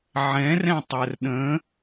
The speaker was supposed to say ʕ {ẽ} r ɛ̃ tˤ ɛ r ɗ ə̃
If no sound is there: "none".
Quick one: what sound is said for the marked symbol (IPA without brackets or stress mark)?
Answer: ɛ̃